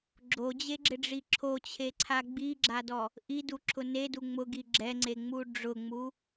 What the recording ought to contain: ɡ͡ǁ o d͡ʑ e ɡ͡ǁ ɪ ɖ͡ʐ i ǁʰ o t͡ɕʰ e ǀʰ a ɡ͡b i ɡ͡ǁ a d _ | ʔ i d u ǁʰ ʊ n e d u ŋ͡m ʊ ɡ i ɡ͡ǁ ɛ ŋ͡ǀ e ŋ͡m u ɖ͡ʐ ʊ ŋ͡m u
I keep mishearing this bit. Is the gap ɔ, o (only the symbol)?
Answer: ɔ